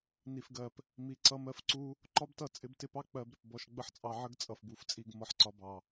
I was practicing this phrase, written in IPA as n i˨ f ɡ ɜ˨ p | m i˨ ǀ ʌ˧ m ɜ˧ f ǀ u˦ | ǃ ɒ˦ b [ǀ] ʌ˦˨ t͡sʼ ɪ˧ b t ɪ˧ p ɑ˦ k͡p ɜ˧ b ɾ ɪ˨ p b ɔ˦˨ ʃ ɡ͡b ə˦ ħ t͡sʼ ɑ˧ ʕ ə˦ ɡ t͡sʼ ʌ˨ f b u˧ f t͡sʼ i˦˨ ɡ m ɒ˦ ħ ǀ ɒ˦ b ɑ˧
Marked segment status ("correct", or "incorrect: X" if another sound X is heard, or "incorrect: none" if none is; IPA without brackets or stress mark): incorrect: t